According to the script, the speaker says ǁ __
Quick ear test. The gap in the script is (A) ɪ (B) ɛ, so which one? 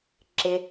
A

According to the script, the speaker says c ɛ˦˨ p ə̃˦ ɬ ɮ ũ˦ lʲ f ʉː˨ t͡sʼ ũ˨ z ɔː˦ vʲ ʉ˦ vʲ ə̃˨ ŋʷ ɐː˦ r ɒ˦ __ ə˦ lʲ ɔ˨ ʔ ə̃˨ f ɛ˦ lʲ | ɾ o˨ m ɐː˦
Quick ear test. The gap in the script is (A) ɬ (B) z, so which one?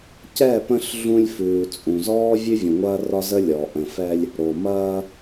B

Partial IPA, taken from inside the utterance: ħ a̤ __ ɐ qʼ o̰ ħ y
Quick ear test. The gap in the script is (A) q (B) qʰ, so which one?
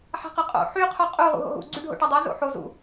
A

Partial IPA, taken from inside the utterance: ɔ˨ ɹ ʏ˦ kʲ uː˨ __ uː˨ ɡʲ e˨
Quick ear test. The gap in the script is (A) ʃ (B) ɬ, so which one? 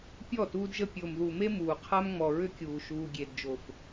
A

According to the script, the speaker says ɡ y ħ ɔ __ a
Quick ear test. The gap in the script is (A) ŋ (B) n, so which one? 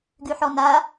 B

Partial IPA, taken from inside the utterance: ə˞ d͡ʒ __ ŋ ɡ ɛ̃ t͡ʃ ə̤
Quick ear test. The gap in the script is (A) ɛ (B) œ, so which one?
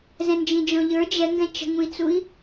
A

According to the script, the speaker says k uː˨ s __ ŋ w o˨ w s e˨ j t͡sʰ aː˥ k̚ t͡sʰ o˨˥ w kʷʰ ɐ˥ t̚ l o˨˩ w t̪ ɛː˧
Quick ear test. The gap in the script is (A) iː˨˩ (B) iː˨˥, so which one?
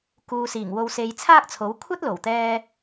A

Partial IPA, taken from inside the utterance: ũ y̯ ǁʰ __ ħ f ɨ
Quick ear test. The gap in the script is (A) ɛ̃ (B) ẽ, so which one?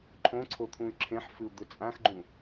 B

